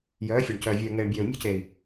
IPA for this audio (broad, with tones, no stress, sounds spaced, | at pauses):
j œː˨˦ fʲ o˨ ɳ c œː˨ vʲ œː˨ ŋ eː˨ ɳ bʲ œː˨ u̯ mʲ ṳ˦ c eː˨ i̯